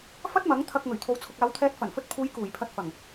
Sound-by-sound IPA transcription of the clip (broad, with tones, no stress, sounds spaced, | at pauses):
f ɐ˥ t̚ m ɐ˨˥ ŋ t̪ʰ ɐ˧ k̚ ŋ ɵ˨˩ ɥ t̪ʰ o˨ w t͡sʰ ʊ˨ k̚ aː˨˧ w t̪ʰ ɛː˨˥ t̚ f ɐ˨˩ n f ɵ˧ t̚ pʰ uː˨˧ j k uː˨˩ j pʰ ɐ˧ t̚ f ɐ˨˩ ŋ